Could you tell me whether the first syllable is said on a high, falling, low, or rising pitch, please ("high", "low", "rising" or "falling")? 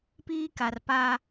high